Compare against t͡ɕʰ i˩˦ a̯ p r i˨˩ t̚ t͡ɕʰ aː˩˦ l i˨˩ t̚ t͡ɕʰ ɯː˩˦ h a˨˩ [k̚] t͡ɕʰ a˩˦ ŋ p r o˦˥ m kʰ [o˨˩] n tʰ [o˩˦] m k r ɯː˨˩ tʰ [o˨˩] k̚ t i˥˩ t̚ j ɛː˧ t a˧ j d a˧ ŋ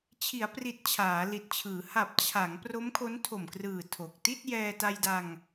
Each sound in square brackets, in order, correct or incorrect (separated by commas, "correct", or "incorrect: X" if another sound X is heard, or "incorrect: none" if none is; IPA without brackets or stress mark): incorrect: p̚, incorrect: o˦˥, incorrect: o˨˩, correct